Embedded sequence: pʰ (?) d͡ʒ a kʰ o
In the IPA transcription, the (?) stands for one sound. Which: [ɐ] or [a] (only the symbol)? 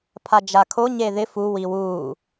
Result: a